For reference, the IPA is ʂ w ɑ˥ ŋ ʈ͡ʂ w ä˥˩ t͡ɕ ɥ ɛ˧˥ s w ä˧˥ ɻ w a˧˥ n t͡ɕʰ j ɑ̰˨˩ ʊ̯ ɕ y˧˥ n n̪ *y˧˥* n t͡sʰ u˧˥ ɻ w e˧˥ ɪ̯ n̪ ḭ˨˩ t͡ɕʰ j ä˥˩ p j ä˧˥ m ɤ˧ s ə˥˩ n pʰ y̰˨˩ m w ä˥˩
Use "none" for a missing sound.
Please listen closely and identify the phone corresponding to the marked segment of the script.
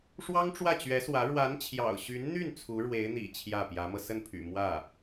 y˥˩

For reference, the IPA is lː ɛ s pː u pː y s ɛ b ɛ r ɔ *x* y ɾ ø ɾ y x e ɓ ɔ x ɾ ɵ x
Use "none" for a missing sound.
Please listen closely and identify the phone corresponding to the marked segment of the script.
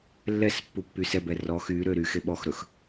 x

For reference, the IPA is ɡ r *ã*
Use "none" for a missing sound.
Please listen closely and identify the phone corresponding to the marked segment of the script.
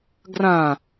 ã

